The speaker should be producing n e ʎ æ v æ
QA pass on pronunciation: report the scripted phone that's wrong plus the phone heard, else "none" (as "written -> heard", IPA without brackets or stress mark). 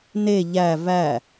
none